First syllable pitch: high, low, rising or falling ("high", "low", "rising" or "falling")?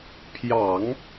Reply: low